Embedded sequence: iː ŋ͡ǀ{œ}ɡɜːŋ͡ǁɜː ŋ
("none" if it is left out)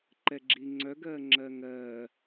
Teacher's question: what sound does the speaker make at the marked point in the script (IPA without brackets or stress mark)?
œ